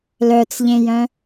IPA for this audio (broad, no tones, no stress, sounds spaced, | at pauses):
l œ t͡s ʎ ẽ j œ̃